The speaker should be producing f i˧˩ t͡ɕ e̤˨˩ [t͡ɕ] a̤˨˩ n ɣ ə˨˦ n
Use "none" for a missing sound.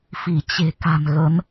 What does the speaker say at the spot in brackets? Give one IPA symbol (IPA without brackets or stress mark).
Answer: k